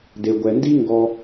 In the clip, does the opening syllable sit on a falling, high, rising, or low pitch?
low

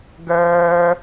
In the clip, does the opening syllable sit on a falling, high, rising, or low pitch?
high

